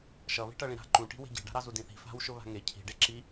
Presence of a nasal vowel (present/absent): present